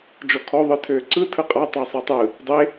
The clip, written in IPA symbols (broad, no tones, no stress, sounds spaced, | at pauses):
d͡ʒ ɔ kʰ ɔ ðˤ ɯ tʰ øː ǀ ɯ tʰ ɯ qʼ a tˤ a sˤ e tˤ ɯ | dˤ e